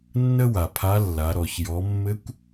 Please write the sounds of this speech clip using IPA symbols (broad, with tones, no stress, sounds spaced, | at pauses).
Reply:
nː ə˥ w a˩ pʰ a˧˥ lː a˩˧ ɾ ɔ˩ ç j ɔ˩˧ mː ɘ˧˥ kʷ